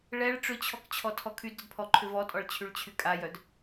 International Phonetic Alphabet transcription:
ɭ ɛ ɭ ʈ͡ʂ ʏ t͡ɕʰ ɔ k t͡ɕʰ ɔ tʰ ɔ kʰ y d ɾ ʏ d pʰ ɔ ǃʰ ʏ v ɔ tʼ ɔ ɭ t͡ɕʰ y ɭ t͡ɕʰ y kʼ a j œ d

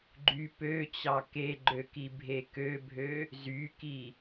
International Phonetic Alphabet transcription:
ɡ͡ǃ y p ø t͡ɕ ɑ k e ɡ͡ǃ ø k i bʱ e k ø bʱ ø | z y k i

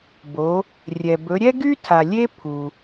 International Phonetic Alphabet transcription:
b o˩˧ | rʲ ɛ˩ b ɵ˩˧ ɾʲ ɛ˥ ɡ y˥ tʰ a˩ lʲ e˥ pʰ u˩

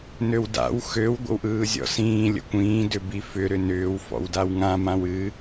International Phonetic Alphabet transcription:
n ø w d a̰ w x ø w ɡʷ ə̰ w ʔ ɯː zʲ ɔ̰ s ĩː lʲ ə̰ kʷ ĩː d ʏ b i f ʏ ɾ ʏ n ʏː w f ɔ̰ w d a w ŋ ã m ã w ɨ

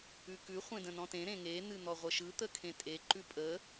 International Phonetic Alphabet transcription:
ʉ k ʉ χʷ ẽ d ə̃ n ɔ̃ t ẽ ɾ ẽ ŋ e n̪ ɨ n̪ ɔ ʁʷ ə ʃ ɯ t̪ ə kʰ ẽ tʼ e ǃ ʉ pʼ ə

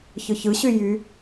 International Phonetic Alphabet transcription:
ç ɯ ç ɯ ɕ y j y

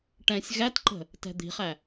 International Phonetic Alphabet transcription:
ʈ ɛ̃ sʲ ɣ æ t ǃ ə̤ | t ɛ̤ d̪ i̤ χ æ

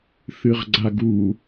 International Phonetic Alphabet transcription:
θ ɨ ʁ ɡ͡ǀ a ɡ u

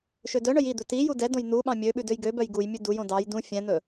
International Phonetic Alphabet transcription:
ʃ ø d œ ɳ œ j i d̪ ɵ t i j u d ɛ d õ j n̪ u ɓ ɑ̃ mʲ ø ɓ ʉ d ø j ɡ ø b œ j ɡ u j mʲ ʉ d u j õ d ɑ j d ũ fʲ ɛ̃ n̪ ɵ

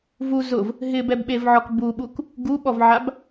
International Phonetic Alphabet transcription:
v u z ʊ v | ɦ ɪ b ɛ b ɓ e v ʕ ɔ k b u ɓ u k | ɡ u ɓ ɔ v ʕ a b

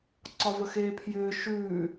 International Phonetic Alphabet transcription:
ǀ ɒ v ə x eː pʰ j ʏː ʃ ʉː

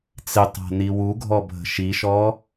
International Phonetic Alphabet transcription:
t͡s ɪ tˤ a̤ n i w u ɡʱ ɔ bʱ ə̤ ʃ i ʃ ɔ

